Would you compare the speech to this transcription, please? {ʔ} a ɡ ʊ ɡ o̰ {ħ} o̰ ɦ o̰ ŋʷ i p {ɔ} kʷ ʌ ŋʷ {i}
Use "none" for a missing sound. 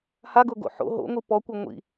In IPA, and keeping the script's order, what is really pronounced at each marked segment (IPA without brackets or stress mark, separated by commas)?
h, ħ, ɔ, ḭ